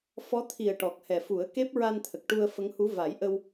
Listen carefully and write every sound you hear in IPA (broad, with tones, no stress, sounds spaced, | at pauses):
f ɔ˧˥ t̪ʰ i˨˩ ə̯ ʈ ɔ˨˩ k̚ h ɛ˨˩ f u˨˩˦ ə̯ k e˦˥ p̚ ɹ a˧ n t̪ʰ ə˨˩ k̚ ʈ u˧ ə̯ f ə˧˥ ŋ h u˧˥ v a˨˩˦ j ʔ ə˧ w